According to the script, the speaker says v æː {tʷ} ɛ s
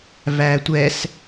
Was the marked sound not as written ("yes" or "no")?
no